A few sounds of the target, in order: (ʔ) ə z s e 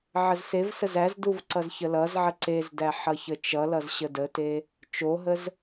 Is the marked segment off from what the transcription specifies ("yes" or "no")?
yes